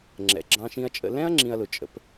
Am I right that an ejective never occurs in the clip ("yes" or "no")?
no